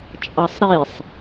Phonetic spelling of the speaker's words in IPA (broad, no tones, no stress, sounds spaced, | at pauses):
t͡ʃʼ ɑ sˤ ɾ i sˤ